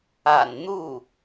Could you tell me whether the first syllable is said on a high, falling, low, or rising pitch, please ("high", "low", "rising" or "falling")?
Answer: low